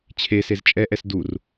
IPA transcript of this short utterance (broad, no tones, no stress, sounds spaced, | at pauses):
t͡ɕʰ e s e z t͡ʃʼ ɛ ʔ ɛ s d u r